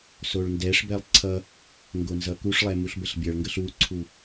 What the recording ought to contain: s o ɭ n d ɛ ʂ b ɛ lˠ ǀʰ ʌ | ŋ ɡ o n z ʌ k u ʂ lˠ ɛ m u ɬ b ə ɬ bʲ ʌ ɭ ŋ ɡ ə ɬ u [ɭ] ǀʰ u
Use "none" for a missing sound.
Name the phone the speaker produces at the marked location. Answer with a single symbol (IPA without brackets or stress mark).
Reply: none